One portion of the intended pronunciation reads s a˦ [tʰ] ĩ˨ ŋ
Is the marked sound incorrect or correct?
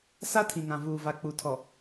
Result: correct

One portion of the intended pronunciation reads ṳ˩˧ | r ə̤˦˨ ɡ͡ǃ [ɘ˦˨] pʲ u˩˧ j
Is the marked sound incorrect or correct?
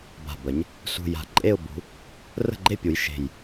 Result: incorrect: e˦˨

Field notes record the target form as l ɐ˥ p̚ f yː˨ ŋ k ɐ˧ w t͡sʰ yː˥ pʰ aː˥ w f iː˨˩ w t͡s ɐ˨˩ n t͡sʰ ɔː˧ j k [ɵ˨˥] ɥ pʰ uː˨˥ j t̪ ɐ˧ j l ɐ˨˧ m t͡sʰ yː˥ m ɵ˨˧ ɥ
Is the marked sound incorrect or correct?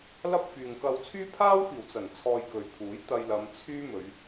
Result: incorrect: ɵ˨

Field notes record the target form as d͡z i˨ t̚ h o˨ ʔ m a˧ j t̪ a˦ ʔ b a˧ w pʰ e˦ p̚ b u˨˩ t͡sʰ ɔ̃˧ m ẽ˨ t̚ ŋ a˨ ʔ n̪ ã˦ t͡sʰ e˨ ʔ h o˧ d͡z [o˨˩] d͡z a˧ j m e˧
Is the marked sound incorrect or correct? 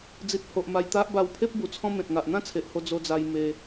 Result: incorrect: o˧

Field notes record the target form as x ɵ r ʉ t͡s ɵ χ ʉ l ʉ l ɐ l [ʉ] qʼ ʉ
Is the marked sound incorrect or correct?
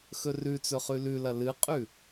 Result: incorrect: ɨ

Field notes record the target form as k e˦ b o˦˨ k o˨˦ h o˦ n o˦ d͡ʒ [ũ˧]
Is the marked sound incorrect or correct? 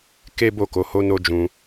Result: correct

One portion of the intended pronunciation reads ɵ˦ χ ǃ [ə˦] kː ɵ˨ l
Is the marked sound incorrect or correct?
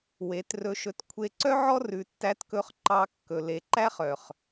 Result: incorrect: ɑ˦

